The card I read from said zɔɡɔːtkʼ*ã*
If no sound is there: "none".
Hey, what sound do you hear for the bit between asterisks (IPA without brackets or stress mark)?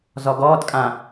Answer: ã